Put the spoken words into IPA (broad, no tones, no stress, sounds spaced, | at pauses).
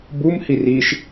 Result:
b u m h i r i ʃ